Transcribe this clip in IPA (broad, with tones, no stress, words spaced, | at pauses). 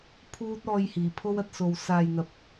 pʰuː˥t̚ ɔː˧jhiː˨˩pʰo˥wɐ˧t̚ so˨wsaː˨j n̪ɐ˨p̚